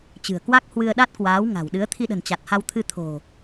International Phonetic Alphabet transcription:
t͡ɕ ɨ̤˨˩ ə̯ k w a˦˥ k̚ h w ɨ˧ ə̯ ɗ a˦˥ t̚ k w aː˨˦ w ŋ a̤˨˩ w ɗ ɨ˨˦ ə̯ t̪ʰ i˧ ɗ ə̤˨˩ n t͡ɕ a˨˩ t̚ h a˧ w t̪ʰ ɨ˧ t̪ʰ o̤˨˩

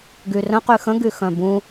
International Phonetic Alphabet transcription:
ɡ y r ə̃ q y x ə̃ ɡ y x œ̃ b ũ

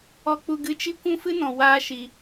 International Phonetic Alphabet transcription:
ɔ˧ k͡p u˧ ɡ ɨ˧ t͡ʃ i˦ kʷ ũ˦ f ɨ˦ n ɔ̃˨ w aː˦ ʃ i˧

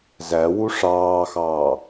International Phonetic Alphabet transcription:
z æ w u ʂ ɑː x ɑː

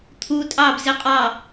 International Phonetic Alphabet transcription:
t̪ʰ u tʼ ɑ b z ɪ qʼ ɑ

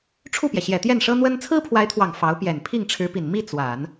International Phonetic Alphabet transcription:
ʈ͡ʂʰ u˥˩ p j ɛ˩ ɕ j ɛ˨˩ t̪ j ɛ˥˩ n ʂ ɤ˥ n̪ w ə˥ n t͡sʰ ɹ̩˥ pʰ w a˧˥ ɪ̯ t̪ʰ w ɑ˨˩ ŋ f ɑ˧˥ ʊ̯ p j ɛ˨˩ n pʰ i˥˩ ŋ ʈ͡ʂʰ ɻ̩˧˥ p i˨˩ n m i˥˩ t͡s w a˨˩˦ n

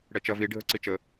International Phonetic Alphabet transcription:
ɽ ɛ t͡ʃ ɐ v i ɖʱ ə ǀ i t͡ʃ ə

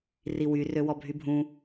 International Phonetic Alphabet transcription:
r i w y r ø w ɔ bʱ y bʱ ũ

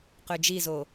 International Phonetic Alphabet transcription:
q ø d͡ʒ i z o

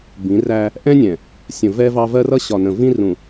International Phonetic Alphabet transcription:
b ĩ˨˦ r æ˦ | ʔ ɛ̃˦ nʲ ɛ̃˨ | sʲ ə̃˨ v ɛ˦ v ɑ˦ v ɜ˦ r ʌ˦ ɕ ɒ˨ n ə̃˨ v ĩ˦ r ũ˨

